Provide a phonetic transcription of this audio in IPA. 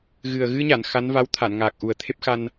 ɣ ɨ˨˩ ə̯ ɣ ɨ˧ ɲ a˨˩˨ n x a˧˥ n v a˧˥ w t̪ʰ a˨˩˨ n ŋ aː˨˩ k̚ ʔ u˨˩ ə̯ t̪ʰ e˦˥ p̚ x a˧ n

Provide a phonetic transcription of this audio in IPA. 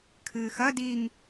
kʰ ɨː x ɐ d i ŋ

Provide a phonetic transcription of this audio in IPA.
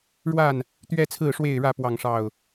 ɻ w a˥˨ n | t̪ ɥ ɛ˦ t͡sʰ ɹ̩˥˨ ʂ w e˥˨ ɪ̯ ɻ ä˥˨ p w ɑ˥˨ ŋ ʂ ɑ˥˨ ʊ̯

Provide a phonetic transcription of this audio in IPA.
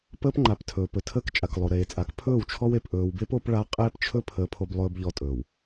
p əː˦ p ŋ͡ǃ a˨ p tʰ ɵː˨ p ɵ˨ tʰ əː˦ k t͡ʃʼ a˨ k lˠ o˨ ɾ eː˨ t͡sʼ a˨˦ k pʰ ɵː˦˨ w t͡ʃʰ ɔ˦ w e˨ p ʔ ɵː˨ w b e˦ p o˨˦ p ɭ a˦ qʼ eː˦ p t͡ʃʰ ɵ˦ pʰ əː˨ pʰ o˨ b lˠ ɵː˨ b ʎ ɔ˨ tʼ ɵː˨ w

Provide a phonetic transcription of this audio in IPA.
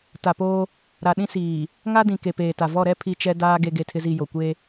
t a˨ p oː˦ | ɾ a˨ ɗ ĩ˦ s iː˨ | ŋ a˦ d ĩ˨ k e˨ p eː˨ t a˨ v ɔ˦˨ ɾ ɛ˦ pʰ i˦˨ t͡ʃ ɛ˦ d aː˦ ɡ e˦ ɡ e˦˨ tʰ ɪ˦ z i˦˨ j o˨ kʷ e˦

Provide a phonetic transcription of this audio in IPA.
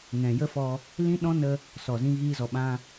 ŋ ɛ̃˨ j ə˦ f ɔ˧ | l ĩ˦ ɗ ɔ̃˦ n ə˧ | s ɔ˨ z ĩ˧ ɣ iː˧ z ɔ˨ ɓ ã˧

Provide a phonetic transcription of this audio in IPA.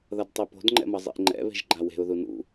ð ʌ d tˤ i p o̤ d ŋ͡ǃ ɛ̰ m ʌ zˤ ḭ ʔ ŋ͡ǃ ɛ̰ β e̤ ʒ ɡ͡ǃ a w e̤ ʊ̯ ð u n ṵ

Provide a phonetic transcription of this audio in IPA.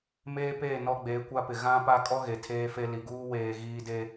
m eː˦ p eː˦˨ n ɔ˦ ɡ͡b eː˨˦ kʷ a˦ p ɪ˨ ɣ ã˦ p a˦ kʼ ɔ˦ ɣ e˨ tʰ eː˦ f e˦ l i˨ ɡ uː˦ w eː˨ ɣ iː˨ d e˨

